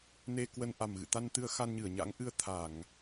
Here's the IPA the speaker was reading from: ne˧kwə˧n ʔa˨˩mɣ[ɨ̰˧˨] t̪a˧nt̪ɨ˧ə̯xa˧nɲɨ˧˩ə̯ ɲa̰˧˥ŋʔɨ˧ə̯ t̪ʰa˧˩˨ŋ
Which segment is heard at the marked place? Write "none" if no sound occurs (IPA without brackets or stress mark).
ɨ̰˧˨